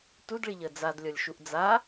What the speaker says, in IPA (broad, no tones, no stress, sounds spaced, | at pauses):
t u d ɭ i ʎ əː d͡z a d lʲ ɔ lʲ ʃ u ʔ d͡z a